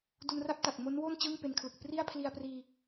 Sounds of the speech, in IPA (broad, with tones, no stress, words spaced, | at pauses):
du˧nra˥˩p̚ta˨˩k̚ mo˦˥nwo˥˩n t͡ɕɯː˥˩ŋpe˧nkʰlɯ˨˩k̚ pri˥˩a̯pʰli˧a̯priː˧